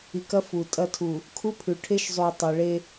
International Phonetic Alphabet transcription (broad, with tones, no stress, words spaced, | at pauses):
i˨kɐ˦ fu˨ tʼɐ˦˨tʰu˨ | kʰu˦pʰʉ˨ ʈʰe˦ʃzˤu˨i̯ tˤe˨ɭe˦